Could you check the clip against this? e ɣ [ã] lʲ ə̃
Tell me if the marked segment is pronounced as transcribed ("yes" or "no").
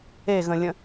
no